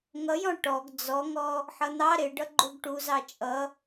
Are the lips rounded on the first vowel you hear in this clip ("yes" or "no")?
no